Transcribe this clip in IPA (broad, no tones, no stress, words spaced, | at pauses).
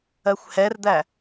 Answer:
ɜxʷhɛrd̪æ